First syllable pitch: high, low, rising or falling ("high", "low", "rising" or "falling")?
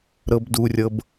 low